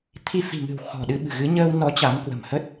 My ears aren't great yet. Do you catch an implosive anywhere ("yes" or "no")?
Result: yes